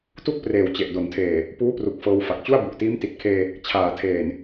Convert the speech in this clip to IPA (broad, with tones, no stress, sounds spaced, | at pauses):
t u˥˩ k̚ p r eː˨˩ w t͡ɕ e˨˩ ʔ d o˩˦ n tʰ eː˨˩ | p uː˦˥ p r u˨˩ k̚ f ɤː˧ w f a˨˩ k̚ t͡ɕ u˥˩ a̯ b u˨˩ ʔ t iː˦˥ m t i˨˩ t̚ kʰ eː˧ | t͡ɕʰ aː˨˩ tʰ eː˨˩ n